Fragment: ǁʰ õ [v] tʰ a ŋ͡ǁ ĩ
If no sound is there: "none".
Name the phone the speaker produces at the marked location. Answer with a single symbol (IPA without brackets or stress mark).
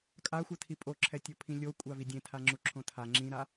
none